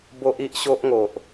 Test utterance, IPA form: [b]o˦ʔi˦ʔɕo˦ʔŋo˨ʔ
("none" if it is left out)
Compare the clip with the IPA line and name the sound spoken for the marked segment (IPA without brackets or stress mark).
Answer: b